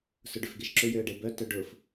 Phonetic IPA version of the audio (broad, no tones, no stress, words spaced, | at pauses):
sʊɖʏfɡeʃǁʏ jʏə̯ɖebœ tœɖʊf